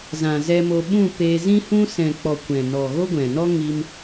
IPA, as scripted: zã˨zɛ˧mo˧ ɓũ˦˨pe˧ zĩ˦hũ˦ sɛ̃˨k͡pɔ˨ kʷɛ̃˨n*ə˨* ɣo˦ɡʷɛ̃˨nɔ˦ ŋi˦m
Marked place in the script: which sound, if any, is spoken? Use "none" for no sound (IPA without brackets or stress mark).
ɔ˨